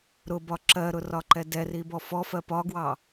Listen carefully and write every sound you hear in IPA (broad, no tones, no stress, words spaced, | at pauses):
ɾʊbɒ ǁɜɾʊrɒǃɛ dɛribɔ fɔfɜ pɒɡwɑ